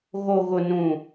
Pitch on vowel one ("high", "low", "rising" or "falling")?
low